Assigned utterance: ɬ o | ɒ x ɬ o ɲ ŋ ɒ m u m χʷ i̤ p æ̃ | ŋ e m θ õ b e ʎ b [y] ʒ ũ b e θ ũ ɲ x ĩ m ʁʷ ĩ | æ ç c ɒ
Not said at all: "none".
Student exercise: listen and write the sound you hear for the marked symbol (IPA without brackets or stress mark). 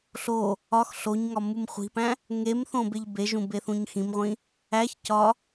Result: e